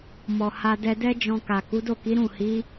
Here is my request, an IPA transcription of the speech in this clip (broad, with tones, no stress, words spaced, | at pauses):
mɔ˨ha˧dɛ˧dɛ˦ d͡ʒɔ̃˧ka˨ ku˨˦do˦˨ki˨˦ ɾũ˦˨hi˨˦